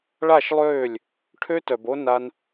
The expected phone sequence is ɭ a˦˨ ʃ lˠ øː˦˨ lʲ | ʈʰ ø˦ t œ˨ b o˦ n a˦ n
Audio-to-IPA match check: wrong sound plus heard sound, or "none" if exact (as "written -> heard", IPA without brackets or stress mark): none